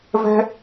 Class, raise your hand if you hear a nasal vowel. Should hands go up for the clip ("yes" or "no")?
no